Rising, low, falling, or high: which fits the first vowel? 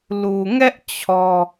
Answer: low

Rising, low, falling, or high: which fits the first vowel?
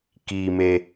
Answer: low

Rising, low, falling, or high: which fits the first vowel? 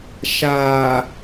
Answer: low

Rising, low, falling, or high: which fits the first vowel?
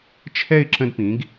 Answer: falling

